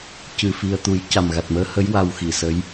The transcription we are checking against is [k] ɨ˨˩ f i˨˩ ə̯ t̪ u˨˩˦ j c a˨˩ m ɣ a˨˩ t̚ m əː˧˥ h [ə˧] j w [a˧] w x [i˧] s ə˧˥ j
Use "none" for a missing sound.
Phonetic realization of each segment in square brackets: c, ə˧˥, a˧, i˨˩˨

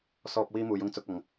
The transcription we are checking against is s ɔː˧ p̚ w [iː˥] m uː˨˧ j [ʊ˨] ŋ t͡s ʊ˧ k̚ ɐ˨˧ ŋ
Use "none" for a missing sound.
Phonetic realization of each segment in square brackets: iː˥, ʊ˥

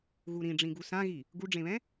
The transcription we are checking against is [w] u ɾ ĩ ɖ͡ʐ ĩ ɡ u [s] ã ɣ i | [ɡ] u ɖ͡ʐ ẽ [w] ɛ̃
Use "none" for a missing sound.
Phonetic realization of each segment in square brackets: ɣ, s, ɡ, β

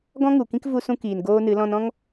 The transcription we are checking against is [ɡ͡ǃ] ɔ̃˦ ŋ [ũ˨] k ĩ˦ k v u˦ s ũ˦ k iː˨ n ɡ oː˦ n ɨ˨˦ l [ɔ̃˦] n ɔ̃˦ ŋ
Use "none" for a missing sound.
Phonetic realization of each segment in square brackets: ɡ, u˨, ɔ̃˦

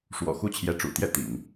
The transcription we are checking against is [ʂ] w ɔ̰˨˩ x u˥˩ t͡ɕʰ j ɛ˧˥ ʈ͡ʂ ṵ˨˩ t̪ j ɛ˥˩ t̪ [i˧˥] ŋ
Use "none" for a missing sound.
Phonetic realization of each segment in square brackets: ʂ, ḭ˨˩˦

